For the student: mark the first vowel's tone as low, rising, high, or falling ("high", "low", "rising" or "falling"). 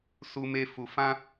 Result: high